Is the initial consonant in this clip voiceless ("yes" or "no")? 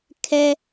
yes